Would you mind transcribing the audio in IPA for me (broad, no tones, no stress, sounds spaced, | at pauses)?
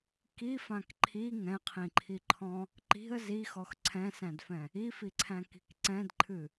k i f ã k ǃʰ i ŋ ɛ̃ qʰ ĩ ǃʰ i ǃʰ ɔ̃ | ǃ i̤ ə̯ z i x ɔ x ǀʰ ɛ̃ s æ̃ d f ɛ̃ | i f i ǀʰ æ̃ k i̤ k ǀ ɛ̃ d ǃʰ ɨ